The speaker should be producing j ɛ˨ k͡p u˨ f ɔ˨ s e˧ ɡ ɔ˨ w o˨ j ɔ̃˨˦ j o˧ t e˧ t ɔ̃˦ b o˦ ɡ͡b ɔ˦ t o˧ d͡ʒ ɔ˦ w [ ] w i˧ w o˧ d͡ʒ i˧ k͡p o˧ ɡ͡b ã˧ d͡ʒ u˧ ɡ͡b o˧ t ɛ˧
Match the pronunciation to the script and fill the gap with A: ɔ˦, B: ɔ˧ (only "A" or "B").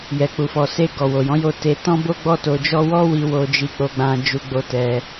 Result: A